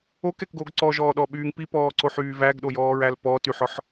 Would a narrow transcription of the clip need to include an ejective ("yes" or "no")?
no